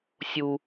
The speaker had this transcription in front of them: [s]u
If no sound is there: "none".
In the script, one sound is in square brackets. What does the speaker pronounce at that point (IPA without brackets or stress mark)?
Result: sʲ